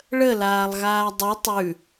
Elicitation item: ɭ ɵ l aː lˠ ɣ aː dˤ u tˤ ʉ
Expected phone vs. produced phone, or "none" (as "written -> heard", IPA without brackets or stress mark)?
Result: ɵ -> ə